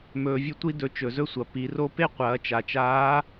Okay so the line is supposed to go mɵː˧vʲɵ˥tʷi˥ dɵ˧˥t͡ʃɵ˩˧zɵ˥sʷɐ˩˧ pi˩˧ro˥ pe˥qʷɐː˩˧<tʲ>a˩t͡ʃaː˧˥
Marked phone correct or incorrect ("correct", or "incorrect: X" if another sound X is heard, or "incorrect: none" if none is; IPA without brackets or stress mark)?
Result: incorrect: t͡ʃ